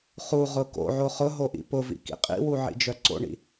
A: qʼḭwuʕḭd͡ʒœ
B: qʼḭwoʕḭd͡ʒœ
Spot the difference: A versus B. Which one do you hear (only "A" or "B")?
A